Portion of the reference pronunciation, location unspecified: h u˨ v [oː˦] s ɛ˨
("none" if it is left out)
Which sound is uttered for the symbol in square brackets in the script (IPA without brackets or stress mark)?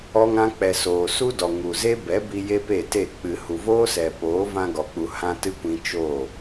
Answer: oː˦